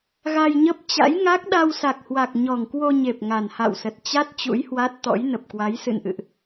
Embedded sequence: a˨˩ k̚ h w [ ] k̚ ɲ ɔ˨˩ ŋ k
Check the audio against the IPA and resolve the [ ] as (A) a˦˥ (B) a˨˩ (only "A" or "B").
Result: B